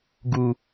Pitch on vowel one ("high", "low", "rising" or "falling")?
low